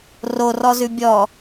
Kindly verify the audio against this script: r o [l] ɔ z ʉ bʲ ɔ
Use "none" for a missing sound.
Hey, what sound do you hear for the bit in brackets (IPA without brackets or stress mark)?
r